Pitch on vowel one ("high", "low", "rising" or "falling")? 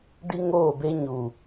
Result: high